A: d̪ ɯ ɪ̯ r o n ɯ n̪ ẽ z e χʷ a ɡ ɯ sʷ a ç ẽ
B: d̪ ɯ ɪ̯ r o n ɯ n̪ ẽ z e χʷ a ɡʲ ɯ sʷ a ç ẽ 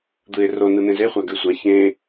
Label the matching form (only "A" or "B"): A